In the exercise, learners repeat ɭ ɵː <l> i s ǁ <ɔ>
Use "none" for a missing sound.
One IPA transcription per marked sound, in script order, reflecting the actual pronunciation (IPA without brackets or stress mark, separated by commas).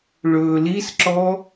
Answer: l, ɔ